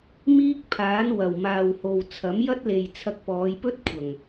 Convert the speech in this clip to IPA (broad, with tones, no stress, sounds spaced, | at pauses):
m iː˥ k̚ pʰ aː˨˥ n w ɐ˨˩ w m aː˨ w h o˨ w t͡sʰ ɐ˨˥ m j ɐ˥ t̚ l e˨ j t͡sʰ ɐ˧ k̚ p ɔː˨˧ j p ɵ˥ t̚ kʷʰ ɐ˨˩ ŋ